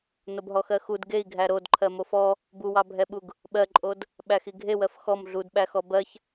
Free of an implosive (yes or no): no